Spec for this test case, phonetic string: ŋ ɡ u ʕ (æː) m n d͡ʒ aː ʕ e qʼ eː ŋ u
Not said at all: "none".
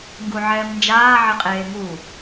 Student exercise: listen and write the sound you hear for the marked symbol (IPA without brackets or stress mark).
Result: ɛː